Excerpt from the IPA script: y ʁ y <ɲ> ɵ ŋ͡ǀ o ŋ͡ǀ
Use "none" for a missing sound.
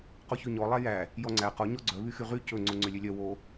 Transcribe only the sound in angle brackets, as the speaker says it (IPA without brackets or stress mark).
c